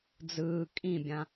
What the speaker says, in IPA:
d͡z ɯː kʼ ĩ bʲ ã

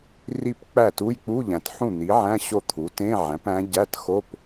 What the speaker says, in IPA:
r i˥˩ p k͡p æ˥˩ t u˧˥˧ j k͡p u˧˥˧ ʎ æ̃˩ t ħ ũ˥˩ n̪ i˩˥ ʕ æ̃˧˥˧ ɕ o˥˩ t̪ʰ u˩˥ t ẽ˧˥˧ ʕ æ̃˩˥ p æ̃˧˥ ɟ æ˧˥˧ t x o˧˥˧ p

